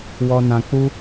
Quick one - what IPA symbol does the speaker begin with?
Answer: w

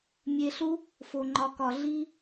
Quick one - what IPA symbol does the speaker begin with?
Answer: mʲ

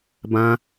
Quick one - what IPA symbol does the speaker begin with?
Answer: b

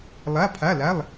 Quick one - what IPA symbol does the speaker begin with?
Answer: lˠ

